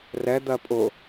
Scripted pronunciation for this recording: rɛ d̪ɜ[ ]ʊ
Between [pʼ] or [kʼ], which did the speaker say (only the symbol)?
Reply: pʼ